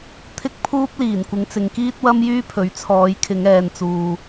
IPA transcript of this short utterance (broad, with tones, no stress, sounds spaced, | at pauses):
t̪ʰ ɪ˥ k̚ pʰ uː˥ p̚ l iː˨˩ n kʷ ɪ˨˧ ŋ t͡s ɪ˨ ŋ k iː˥ t̚ w ɐ˥ m j yː˥ pʰ ɵ˨˥ ɥ t͡sʰ ɔː˨˧ j kʰ ɪ˨˧ ŋ ɛː˨ n t͡s uː˨